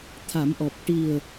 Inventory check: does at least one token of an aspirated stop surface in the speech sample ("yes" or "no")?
yes